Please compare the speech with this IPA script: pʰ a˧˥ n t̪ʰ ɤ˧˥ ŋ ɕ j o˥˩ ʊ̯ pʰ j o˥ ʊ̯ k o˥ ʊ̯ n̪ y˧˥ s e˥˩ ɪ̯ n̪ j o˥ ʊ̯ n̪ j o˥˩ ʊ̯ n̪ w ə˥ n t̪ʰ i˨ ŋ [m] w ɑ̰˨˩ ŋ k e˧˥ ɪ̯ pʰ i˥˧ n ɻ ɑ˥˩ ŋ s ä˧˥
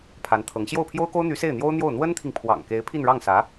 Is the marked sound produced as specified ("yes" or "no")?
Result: no